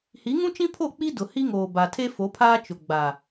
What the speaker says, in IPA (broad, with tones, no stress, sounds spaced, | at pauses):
h i˨˦ ŋ ũ˦ t͡ʃ ĩ˦ pʰ o˦˨ k͡p i˦ d ʊ˨ h i˦ ŋ oː˨ b a˨ tʰ e˦ f o˨˦ pʰ aː˦ t͡ʃ ʊ˨ ɡ͡b a˨